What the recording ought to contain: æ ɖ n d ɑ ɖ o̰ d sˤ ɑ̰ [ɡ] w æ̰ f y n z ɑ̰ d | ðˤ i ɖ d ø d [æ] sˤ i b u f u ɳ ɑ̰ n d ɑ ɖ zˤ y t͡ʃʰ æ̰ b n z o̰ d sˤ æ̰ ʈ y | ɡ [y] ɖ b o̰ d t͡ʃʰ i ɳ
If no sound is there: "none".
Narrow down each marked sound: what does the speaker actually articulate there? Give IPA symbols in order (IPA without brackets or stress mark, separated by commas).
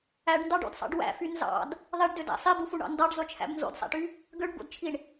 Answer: ɖ, æ̰, ø